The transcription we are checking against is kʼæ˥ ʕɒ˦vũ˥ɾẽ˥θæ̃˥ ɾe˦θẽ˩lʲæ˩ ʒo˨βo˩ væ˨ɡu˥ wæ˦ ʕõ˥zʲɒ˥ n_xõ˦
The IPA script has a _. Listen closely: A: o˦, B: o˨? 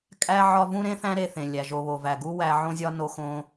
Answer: A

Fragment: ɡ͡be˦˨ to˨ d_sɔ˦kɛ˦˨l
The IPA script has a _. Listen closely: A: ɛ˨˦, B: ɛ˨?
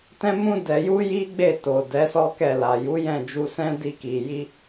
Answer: A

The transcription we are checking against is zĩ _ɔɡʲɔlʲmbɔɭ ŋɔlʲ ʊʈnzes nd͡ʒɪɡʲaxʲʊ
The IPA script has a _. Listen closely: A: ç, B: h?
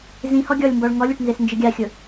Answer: B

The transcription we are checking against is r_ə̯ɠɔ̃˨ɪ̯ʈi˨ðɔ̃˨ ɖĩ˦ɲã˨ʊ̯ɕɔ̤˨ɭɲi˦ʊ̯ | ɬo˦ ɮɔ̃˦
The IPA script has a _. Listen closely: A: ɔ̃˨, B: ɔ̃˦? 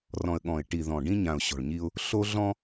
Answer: A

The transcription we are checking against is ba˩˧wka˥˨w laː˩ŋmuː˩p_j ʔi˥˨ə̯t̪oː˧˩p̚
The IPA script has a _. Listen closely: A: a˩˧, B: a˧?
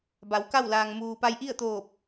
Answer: B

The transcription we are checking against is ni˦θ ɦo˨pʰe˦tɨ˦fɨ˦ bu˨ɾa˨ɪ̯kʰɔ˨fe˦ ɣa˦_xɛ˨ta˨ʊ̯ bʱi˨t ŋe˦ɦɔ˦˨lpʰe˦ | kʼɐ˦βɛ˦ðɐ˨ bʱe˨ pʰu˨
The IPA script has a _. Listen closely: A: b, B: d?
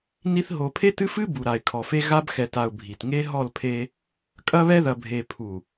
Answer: A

